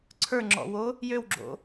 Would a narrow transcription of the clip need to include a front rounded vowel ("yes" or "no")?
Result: yes